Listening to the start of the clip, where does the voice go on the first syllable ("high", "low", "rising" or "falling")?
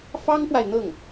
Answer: high